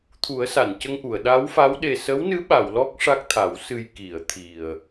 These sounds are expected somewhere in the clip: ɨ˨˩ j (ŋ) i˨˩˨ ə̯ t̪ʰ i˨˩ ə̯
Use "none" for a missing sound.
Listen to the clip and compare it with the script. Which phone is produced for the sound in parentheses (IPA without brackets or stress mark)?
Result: k